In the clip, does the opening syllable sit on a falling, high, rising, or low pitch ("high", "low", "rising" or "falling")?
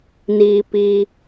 low